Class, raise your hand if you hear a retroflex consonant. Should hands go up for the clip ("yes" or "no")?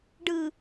yes